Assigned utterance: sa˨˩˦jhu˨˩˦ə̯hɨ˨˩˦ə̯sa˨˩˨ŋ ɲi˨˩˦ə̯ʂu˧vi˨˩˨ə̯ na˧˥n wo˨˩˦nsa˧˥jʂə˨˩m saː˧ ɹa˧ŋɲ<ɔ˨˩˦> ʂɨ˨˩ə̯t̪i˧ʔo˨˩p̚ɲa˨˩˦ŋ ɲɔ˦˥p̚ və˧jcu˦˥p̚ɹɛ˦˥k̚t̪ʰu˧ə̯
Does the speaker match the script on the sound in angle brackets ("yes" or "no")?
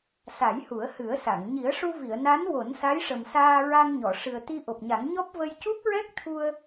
no